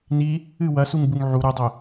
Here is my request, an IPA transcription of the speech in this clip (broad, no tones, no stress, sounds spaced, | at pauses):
n i | ɨ w ɐ s u ŋ b u ŋ ʕ u ɾ ɨ dˤ ɘ